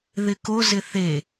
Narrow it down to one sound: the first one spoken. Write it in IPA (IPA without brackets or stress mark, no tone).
ð